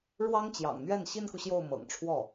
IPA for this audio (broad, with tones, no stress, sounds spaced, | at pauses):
ɻ w ɑ˥ ŋ t͡ɕ j ɑ̰˨˩ ŋ n̪ ɥ ɛ˥˩ n ɕ i˥ n k u˨ ɕ j o˥˩ ʊ̯ m ɤ̰˨˩ ŋ ʈ͡ʂʰ w ɔ˥˩